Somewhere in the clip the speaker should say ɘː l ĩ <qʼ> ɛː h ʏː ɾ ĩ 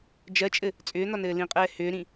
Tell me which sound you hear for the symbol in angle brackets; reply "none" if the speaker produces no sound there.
qʼ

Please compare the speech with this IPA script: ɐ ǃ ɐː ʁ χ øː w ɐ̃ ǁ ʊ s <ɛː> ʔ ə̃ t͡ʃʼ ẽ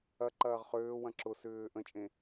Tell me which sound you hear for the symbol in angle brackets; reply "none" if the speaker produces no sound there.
ʏː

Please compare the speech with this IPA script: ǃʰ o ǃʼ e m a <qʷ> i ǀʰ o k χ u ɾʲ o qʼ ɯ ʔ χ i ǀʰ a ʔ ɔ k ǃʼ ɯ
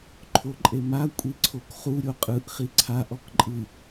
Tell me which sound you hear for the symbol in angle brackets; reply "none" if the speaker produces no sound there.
kʷʼ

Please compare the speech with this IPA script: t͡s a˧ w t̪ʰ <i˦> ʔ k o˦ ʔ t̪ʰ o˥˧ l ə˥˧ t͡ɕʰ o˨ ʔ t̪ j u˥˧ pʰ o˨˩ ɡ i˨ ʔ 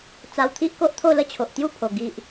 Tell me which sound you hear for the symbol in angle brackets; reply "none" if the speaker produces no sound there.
i˦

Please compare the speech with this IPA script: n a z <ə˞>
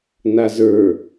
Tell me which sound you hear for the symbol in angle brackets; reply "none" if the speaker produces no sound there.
ə˞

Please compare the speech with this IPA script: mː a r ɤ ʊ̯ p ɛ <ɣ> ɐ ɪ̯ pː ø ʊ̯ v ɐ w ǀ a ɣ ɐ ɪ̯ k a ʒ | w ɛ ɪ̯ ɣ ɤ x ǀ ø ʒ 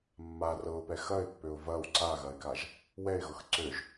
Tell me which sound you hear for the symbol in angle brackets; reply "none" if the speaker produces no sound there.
x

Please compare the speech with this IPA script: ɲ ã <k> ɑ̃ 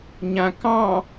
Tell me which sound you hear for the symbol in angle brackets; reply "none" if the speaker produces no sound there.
k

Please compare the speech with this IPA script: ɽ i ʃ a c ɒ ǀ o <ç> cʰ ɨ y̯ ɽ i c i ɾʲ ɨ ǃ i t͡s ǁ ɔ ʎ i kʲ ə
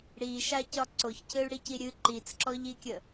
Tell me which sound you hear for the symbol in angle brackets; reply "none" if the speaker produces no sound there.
ç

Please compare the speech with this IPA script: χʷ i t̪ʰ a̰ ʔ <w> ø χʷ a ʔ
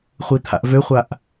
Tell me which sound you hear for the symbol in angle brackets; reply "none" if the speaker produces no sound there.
v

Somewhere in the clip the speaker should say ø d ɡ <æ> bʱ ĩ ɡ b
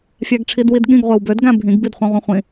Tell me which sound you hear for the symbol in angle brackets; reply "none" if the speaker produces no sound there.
æ̃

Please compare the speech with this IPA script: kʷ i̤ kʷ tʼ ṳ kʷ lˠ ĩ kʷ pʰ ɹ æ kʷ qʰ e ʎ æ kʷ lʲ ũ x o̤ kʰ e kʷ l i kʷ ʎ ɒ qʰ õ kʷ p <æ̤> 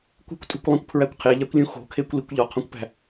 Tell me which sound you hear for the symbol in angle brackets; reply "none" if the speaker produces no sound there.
æ̤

